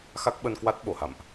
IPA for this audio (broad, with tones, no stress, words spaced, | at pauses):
xa˦˥k̚ɓə˧nkwa˦˥t̚ ɓo˧˩ha̰˧˨mʔ